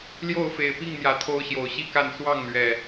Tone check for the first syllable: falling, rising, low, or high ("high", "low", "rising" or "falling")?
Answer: falling